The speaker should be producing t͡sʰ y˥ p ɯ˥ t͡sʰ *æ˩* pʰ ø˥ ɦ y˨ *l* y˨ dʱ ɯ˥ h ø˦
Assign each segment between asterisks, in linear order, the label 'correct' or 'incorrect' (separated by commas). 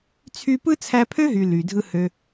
incorrect, correct